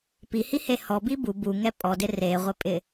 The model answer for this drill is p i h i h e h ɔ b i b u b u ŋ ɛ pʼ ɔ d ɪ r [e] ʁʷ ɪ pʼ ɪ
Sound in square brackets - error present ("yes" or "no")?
no